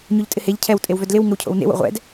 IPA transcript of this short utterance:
ɲoʎtʼɪheʎ cʰɛw tʼewvœdlɪw ŋəwcʰo̰wnḛw o̰ʁʷɛ̰d

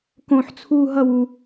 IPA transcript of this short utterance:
kõħt͡sʰuː ɦʌwu

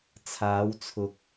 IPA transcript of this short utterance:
t͡sʰaː˨˧w t͡sʰʊ˨k̚

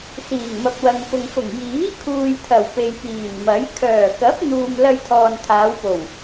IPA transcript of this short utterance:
siː˨˩ŋmɐ˨p̚wɐ˨ŋ pʊ˨ŋfʊ˨˩ŋ jiː˨˥kʰuː˨jt̪ʰɐ˨˩w pe˨jpiː˨˩nmɐ˨˥j kʰœː˨˩kɐ˨˥p̚n̪uː˨m lɐ˧j t̪ʰɔː˨nt̪ʰaː˨˧wpo˨˩w

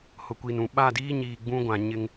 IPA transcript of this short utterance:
hʊ˨kʷiː˨nũ˨ ɓa˦˨diː˦ɲiː˨ ɡ͡bũ˦ɡʷã˨ɲɪ˦ŋ

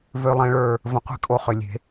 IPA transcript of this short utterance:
vø˨lˠẽ˨ɭə˞˨ | və̃˨qʷe̤˦kʼo˨ χʏ˨lʲe̤˨˦

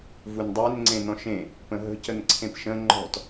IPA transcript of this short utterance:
vundˤen ŋ͡ǀẽnɔ̃ʃẽ | pə̃ɦə̤ cənǀʰẽpʃə̃ ŋ͡ǃɔ̤t

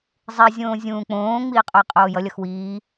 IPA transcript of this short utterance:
zˤizʲõː zʲũːk͡põːŋ͡miː qʼojqʼoːjʌlʲʌx wiː

